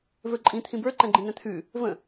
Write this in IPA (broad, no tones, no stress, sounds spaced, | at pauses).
v ə˞ ǃʼ ĩ t̪ʰ ĩ b ə˞ ǃ ɛ̃ ɡ͡ǃ ĩ n ɛ̃ t̪ʰ ʉ | v ə̃